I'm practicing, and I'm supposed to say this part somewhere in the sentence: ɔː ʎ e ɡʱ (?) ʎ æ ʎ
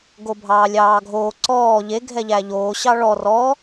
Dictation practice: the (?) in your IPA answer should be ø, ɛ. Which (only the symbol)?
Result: ɛ